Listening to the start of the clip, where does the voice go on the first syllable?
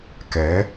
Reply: rising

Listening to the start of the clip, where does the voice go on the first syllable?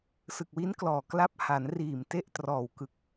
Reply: low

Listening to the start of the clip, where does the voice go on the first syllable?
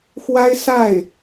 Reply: high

